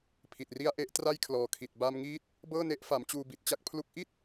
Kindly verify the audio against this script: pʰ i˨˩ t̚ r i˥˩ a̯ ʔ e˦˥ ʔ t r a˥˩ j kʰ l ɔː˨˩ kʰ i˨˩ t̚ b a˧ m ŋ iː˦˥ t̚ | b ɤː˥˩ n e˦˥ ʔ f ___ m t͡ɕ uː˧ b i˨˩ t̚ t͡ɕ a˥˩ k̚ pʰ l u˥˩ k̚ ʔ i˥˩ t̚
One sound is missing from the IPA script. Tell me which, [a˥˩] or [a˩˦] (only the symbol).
a˩˦